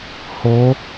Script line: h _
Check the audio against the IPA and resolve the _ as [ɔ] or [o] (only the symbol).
o